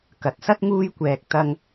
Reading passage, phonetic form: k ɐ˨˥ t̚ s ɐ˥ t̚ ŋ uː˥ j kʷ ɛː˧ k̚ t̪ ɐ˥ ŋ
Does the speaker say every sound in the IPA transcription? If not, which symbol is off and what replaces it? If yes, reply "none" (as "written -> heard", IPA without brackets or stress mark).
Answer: none